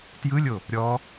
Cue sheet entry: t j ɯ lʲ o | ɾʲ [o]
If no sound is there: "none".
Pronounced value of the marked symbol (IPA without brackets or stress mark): ɔ